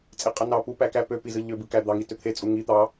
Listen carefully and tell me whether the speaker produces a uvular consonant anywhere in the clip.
yes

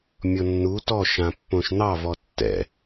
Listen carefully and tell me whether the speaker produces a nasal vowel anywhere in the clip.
yes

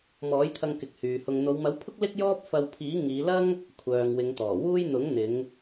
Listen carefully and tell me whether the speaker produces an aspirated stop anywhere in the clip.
yes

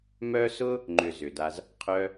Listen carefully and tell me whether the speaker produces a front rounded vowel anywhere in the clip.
yes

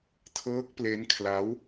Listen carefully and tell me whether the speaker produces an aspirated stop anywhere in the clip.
yes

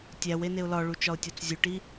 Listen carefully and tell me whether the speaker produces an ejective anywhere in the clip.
no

